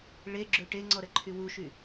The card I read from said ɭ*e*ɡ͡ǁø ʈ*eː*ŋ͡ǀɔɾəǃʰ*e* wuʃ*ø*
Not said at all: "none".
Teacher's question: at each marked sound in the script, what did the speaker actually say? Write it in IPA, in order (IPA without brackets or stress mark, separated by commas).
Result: e, e, y, y